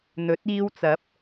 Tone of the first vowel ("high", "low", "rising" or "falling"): rising